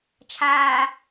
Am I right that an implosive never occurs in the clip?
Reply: yes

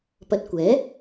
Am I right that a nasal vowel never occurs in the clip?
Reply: yes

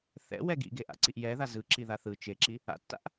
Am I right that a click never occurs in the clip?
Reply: no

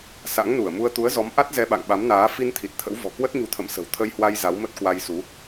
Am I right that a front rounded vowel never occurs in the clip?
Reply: yes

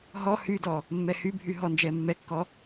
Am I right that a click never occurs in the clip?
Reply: yes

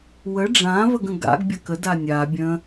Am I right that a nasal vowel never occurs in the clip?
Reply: no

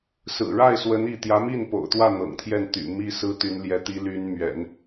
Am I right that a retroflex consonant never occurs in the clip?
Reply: no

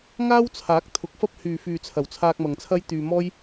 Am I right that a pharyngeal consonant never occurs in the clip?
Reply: yes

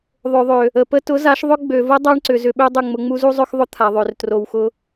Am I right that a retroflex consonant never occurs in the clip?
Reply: no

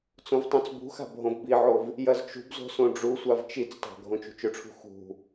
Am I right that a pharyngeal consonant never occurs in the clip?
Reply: no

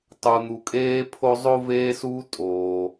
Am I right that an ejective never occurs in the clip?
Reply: no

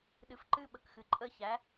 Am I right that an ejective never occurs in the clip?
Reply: no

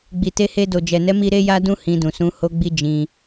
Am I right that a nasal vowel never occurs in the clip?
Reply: no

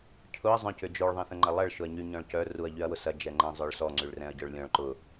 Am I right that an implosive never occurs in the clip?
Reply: yes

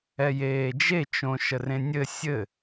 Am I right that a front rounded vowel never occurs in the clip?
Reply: yes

